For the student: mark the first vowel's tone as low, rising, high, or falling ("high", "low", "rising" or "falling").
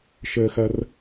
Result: high